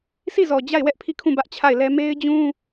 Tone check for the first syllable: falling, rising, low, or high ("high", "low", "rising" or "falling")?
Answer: falling